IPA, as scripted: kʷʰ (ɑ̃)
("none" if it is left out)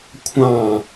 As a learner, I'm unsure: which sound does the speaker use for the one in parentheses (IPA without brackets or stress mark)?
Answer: ɑ̃